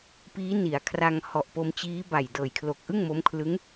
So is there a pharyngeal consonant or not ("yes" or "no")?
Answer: no